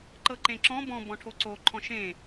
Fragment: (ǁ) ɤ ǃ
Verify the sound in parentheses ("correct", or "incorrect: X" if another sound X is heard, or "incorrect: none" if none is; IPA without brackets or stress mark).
incorrect: ǃ